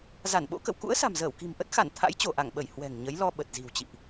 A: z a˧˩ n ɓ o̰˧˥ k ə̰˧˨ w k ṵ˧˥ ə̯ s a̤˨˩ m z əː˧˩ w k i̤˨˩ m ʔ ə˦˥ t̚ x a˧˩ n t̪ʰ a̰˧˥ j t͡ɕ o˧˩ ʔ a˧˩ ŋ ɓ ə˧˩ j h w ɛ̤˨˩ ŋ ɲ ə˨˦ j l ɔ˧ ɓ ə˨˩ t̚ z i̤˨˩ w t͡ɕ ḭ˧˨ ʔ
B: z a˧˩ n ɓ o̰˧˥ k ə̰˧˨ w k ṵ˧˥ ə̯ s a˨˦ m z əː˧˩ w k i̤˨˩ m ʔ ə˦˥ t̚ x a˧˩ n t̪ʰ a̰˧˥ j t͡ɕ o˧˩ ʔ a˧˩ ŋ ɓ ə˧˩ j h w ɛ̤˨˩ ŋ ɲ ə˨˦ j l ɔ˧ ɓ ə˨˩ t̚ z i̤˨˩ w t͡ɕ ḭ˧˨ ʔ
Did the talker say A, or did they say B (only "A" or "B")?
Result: A